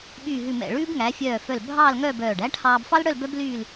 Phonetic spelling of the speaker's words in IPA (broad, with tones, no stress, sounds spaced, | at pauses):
ɓ yː˧˩ ɦ ʉ˧˩ m ɛ̰˧˩ ɭ ʉː˥ b ŋ æ˩˧ fʲ œː˧˩ f œ˧˩ l bʱ ɑː˥˧ l ŋ œ˥˧ b œː˧˩ ɖ æ˥ ʈʰ ɑː˧ b f ɑ˥ l ɽ œ˥˧ l b œ˥ b l yː˥˧ l